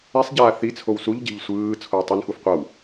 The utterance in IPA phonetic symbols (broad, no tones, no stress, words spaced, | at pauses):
ɛsˤɟaː θit͡sʰow suʎɟe̤ʎ sʷɯː t͡sʰoə̯tˤunxuf qʷaw